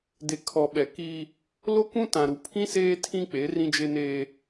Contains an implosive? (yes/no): yes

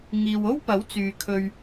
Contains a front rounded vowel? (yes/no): yes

